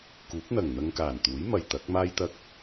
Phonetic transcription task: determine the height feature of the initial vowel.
high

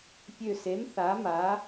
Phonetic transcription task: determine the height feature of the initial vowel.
mid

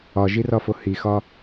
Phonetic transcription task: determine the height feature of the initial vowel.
low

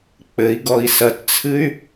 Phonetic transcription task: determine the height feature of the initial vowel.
mid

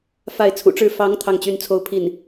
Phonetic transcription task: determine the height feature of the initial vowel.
low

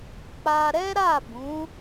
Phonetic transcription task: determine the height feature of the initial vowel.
low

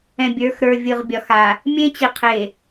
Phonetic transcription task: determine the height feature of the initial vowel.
mid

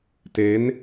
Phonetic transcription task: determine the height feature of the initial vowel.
mid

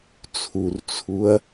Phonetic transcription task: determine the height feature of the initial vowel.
high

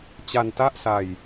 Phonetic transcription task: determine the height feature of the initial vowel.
low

